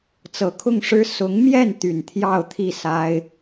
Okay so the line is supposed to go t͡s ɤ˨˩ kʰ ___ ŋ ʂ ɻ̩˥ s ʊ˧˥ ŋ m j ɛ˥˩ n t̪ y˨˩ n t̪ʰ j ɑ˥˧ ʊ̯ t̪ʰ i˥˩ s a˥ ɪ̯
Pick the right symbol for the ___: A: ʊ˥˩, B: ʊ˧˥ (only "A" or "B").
A